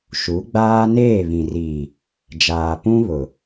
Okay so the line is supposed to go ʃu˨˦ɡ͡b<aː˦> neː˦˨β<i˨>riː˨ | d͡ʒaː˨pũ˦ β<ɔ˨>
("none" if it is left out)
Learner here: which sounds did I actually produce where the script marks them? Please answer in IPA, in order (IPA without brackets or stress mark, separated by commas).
aː˦, ĩ˨, ʊ˨